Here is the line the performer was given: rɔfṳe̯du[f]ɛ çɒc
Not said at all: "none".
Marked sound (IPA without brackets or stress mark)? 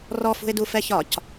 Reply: f